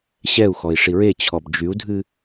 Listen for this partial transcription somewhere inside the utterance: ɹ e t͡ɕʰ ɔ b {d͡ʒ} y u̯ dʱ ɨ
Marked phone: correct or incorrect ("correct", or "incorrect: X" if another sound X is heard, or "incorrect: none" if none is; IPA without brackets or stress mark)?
correct